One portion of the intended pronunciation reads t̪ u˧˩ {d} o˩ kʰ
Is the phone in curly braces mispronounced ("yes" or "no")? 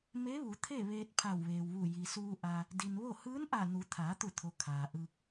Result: yes